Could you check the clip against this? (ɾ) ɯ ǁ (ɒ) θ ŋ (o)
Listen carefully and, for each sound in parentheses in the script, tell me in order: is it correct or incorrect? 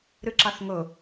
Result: correct, incorrect: ɑ, correct

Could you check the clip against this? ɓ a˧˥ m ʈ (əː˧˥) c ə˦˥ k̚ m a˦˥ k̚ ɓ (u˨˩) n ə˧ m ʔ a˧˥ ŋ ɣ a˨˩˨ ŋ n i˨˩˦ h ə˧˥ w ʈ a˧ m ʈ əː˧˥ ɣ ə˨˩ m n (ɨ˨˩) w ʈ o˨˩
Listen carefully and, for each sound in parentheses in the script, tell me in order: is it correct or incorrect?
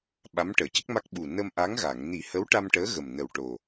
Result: incorrect: əː˨˩˨, correct, incorrect: ə˨˩

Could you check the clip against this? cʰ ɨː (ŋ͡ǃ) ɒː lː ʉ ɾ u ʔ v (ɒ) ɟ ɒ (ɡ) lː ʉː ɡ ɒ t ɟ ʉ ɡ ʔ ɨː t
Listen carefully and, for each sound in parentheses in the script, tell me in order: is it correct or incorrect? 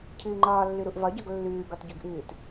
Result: correct, correct, correct

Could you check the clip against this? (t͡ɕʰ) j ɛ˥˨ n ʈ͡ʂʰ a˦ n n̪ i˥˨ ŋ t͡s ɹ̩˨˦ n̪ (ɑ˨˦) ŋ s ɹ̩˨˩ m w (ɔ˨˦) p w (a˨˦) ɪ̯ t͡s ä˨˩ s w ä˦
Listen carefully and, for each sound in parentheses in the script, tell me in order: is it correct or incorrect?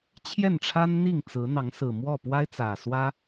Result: correct, correct, incorrect: ɔ˥˨, incorrect: a˦

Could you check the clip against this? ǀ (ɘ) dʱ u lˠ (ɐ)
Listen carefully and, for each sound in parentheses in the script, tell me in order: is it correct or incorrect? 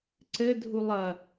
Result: correct, correct

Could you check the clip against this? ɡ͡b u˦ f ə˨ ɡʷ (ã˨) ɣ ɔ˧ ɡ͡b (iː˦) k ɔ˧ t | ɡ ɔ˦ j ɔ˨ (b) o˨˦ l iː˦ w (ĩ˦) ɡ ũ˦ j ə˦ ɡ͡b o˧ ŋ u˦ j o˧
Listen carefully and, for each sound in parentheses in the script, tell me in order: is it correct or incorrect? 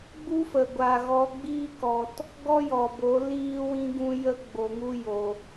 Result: incorrect: a˨, correct, correct, correct

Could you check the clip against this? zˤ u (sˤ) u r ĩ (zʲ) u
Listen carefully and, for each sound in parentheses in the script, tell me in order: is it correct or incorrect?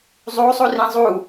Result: correct, incorrect: zˤ

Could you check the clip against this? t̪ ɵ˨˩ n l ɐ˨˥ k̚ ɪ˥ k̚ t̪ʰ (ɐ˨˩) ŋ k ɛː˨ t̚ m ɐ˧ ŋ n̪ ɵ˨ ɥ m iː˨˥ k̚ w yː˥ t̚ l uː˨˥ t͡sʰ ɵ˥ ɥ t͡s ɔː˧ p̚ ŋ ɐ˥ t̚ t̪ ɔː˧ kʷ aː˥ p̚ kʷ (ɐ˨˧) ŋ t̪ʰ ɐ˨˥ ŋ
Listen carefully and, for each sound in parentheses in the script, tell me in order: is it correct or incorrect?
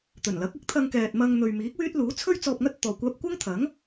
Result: incorrect: ɐ˧, incorrect: ɐ˥

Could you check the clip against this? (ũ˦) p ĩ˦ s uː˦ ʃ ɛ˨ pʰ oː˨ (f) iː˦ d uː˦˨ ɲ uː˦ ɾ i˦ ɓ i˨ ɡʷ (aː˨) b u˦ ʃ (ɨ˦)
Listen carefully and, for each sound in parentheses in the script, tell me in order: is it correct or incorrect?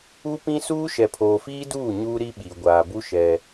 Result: incorrect: u˦, correct, correct, incorrect: ɛ˦

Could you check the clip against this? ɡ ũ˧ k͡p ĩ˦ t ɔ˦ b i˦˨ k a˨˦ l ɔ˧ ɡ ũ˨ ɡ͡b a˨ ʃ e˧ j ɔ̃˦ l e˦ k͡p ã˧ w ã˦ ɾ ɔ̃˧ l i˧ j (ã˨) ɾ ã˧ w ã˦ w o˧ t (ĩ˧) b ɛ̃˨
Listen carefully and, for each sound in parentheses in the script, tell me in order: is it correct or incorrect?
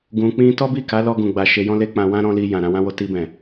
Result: correct, incorrect: i˧

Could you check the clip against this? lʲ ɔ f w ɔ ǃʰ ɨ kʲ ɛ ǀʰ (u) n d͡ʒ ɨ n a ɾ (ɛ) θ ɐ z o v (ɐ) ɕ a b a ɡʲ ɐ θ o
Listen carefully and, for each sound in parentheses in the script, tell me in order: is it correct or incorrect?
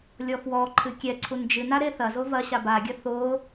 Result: correct, incorrect: e, correct

